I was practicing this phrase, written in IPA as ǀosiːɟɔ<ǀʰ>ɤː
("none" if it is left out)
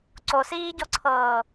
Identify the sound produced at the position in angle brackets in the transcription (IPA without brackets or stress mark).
ǀʰ